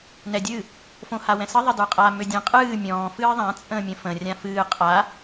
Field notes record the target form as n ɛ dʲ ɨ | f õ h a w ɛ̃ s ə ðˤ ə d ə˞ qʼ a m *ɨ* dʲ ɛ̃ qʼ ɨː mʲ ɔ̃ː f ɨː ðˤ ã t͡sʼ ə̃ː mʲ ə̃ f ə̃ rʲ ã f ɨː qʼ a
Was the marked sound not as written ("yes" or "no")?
yes